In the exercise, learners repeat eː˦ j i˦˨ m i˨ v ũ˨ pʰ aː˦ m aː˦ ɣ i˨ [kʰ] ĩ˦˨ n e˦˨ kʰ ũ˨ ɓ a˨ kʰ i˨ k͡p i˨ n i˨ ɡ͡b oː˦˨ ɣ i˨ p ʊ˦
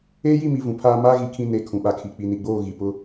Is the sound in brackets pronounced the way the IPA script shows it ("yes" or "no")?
yes